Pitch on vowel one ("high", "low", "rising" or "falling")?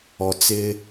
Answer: low